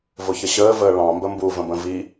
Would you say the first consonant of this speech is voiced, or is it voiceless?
voiced